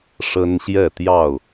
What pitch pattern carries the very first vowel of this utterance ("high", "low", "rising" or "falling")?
high